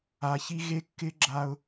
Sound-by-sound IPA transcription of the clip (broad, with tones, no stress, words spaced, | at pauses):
a˨çi˦ɣe˦ kːɪ˦ɡ͡ǁa˦ʊ̯